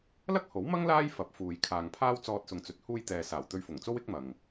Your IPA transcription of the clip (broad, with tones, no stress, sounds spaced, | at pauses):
l ɐ˥ k̚ h o˨˥ w m ɐ˥ ŋ l aː˥ j f ɐ˨˥ p̚ f uː˨ j kʰ aː˨ ŋ pʰ aː˥ w t͡s ɔː˧ t̚ s ʊ˨ ŋ t͡s ɵ˨ t̚ h uː˧ j t̪ ɛː˨ s aː˨˩ w t̪ ɵ˧ ɥ f ʊ˨˩ ŋ t͡s o˥ w ɪ˥ k̚ m ɐ˨ ŋ